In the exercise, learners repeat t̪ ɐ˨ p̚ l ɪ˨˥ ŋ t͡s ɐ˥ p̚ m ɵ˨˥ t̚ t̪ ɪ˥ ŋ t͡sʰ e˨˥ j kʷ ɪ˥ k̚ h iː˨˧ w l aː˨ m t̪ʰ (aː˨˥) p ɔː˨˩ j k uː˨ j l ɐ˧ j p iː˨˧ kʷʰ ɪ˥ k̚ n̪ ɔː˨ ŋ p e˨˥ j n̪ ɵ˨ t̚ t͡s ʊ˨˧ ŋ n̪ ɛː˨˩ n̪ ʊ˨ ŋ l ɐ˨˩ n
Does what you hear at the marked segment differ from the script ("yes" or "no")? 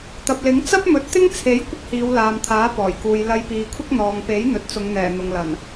no